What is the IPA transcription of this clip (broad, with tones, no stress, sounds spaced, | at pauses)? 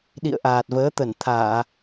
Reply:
ɗ ḭ˧˨ ə̯ ʔ aː˨˩ t̚ v əː˨˦ t̪ ə˧˩ n t̪ʰ aː˧˩˨